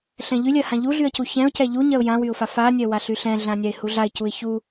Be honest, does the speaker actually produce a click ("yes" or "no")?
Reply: no